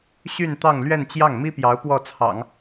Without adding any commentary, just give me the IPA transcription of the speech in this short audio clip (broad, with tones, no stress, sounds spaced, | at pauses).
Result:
ɕ y˥˧ n t̪ ɑ˥˧ ŋ l ɥ ɛ˥˧ n t͡ɕ j ɑ˥˩ ŋ m i˥ p j ɑ˧˥ ʊ̯ p w ɔ˥˩ t͡sʰ ɑ̰˨˩˦ ŋ